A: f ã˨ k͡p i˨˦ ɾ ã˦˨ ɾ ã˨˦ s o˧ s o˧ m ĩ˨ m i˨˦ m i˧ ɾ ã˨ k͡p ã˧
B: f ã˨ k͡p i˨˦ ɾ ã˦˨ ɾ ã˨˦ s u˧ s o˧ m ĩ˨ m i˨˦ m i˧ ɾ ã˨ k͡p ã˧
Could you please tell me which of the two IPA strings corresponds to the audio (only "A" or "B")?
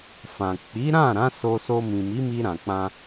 A